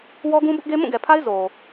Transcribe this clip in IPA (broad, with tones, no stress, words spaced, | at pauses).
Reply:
wɔ˦ɡũ˦bʊ˦ʔɡe˦ mũ˦˨ɡɛ˨pʰa˦ɪ̯ zo˨